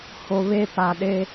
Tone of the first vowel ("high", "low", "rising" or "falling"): low